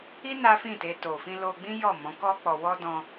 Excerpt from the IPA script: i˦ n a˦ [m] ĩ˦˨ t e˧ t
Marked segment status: incorrect: f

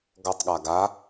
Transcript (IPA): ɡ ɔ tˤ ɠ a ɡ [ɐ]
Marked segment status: incorrect: a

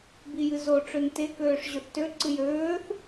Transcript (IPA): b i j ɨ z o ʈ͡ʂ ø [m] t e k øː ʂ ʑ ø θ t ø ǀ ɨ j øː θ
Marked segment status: incorrect: n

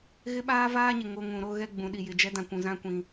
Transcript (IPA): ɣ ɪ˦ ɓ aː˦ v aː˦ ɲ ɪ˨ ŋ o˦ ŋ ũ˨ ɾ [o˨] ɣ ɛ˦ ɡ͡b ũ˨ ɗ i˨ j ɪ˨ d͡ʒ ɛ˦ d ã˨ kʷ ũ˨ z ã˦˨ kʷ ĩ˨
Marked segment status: incorrect: o˦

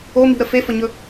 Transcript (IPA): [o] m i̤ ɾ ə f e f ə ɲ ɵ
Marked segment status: correct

